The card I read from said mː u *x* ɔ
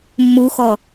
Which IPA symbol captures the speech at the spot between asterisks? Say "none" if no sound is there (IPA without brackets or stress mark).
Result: x